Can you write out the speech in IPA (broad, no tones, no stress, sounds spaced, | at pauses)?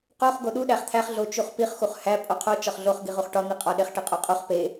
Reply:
q o χ ɡ o ɗ u ɗ æ χ t̪ʰ æ χ ɮ o t͡ʃ u χ p i χ x u χ h æ pʼ o qʰ o t͡ʃ ɒ χ ɮ o χ ɡ i ʁ u χ ʈ ɒ n̪ i qʼ ɒ ɗ e χ ʈ i qʼ o qʼ u χ p e